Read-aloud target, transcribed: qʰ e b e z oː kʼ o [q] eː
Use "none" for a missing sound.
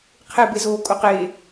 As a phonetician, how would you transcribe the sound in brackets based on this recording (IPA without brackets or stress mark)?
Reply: q